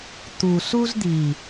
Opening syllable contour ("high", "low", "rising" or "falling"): low